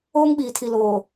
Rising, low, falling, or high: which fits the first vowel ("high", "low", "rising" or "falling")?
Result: high